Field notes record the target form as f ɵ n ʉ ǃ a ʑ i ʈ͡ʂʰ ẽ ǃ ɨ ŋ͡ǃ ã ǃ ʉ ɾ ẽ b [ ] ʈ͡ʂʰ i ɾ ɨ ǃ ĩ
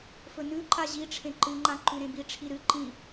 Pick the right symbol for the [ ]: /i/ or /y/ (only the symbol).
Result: i